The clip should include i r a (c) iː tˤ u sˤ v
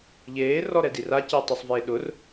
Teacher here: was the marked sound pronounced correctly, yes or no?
yes